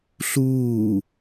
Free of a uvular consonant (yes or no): yes